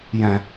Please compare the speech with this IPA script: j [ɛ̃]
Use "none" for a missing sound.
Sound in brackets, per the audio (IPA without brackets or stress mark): ɛ̃